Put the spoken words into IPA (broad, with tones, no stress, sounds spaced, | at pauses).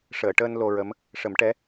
ʂ əː˨˩˨ ʈ əː˧ n l o˧ ɹ ə˧˥ m | ʂ ə˨˩˦ m ʈ ɛ˧˥